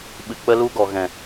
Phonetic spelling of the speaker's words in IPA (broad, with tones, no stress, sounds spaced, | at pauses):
ɓ ɨ˨ k͡p ə˧ l u˧ ɡ ɔ˨ ɣ ɛ̃˨